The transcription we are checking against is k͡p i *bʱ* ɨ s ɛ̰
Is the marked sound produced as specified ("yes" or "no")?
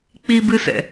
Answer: no